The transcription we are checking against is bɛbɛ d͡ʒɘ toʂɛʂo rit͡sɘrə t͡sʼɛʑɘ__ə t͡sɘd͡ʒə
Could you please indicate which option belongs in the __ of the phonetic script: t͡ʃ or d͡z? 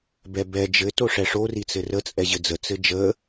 d͡z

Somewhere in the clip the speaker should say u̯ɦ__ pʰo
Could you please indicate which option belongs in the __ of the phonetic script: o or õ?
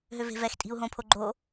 õ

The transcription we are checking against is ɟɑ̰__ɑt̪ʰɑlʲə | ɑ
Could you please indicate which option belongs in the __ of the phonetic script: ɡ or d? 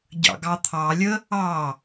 ɡ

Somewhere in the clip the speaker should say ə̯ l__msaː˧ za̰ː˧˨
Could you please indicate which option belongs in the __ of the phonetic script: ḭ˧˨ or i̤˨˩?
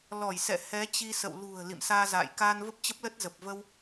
ḭ˧˨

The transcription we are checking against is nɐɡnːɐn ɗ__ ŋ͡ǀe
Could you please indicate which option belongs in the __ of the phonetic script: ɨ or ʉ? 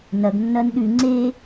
ʉ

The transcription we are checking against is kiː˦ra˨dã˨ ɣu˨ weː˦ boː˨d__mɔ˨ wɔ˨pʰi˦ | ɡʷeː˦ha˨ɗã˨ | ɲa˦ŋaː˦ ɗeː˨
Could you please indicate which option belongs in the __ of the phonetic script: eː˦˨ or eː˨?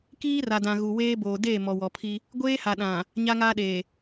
eː˦˨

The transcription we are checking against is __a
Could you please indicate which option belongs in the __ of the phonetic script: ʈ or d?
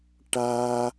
ʈ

